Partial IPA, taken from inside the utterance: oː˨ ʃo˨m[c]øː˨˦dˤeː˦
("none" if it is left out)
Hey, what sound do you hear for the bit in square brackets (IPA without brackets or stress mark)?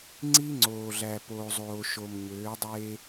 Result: ɲ